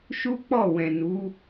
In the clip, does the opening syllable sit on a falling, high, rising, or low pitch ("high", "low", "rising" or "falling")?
high